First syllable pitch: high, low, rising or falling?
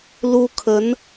high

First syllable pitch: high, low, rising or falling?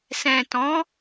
low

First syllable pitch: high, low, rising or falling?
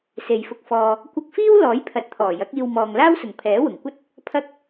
low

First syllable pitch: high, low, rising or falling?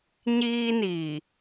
high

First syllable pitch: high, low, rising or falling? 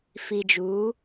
low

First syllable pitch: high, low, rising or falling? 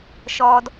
high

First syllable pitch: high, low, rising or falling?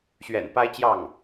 low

